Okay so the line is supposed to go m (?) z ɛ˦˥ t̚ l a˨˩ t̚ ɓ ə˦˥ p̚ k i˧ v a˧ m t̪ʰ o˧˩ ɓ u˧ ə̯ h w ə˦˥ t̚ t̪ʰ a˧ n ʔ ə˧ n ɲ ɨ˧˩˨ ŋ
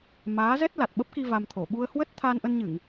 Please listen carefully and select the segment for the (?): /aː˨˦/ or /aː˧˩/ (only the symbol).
aː˨˦